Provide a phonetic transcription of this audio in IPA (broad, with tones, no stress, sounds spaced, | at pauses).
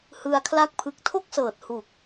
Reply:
h ɯ˧ a̯ kʰ l a˦˥ k̚ pʰ ɯ˨˩ k̚ tʰ o˥˩ k̚ s ɤː˨˩ t̚ h u˨˩ k̚